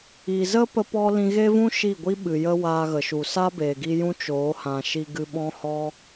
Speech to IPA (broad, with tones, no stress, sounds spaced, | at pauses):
i˨ z ə˦ p ə˦ p ɔ˦ l ĩ˧ ɣ e˦ v ũ˦ ʃ i˦˨ ɡʷ i˦ ɓ ɨ˨ j ə˦ w aː˧ ɣ ə˨ ʃ u˨ s a˦ b eː˨ ɡ i˧ j ũ˦ t͡ʃ oː˨˦ h ã˨ ʃ i˧ ɡ ɨ˧ ɓ ɔ̃˦ h ɔ˦